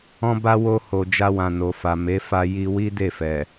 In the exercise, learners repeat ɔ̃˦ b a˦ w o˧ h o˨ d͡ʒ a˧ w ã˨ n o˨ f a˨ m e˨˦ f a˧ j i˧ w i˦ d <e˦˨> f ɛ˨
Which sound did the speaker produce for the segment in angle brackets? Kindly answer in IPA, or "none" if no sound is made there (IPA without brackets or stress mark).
e˦˨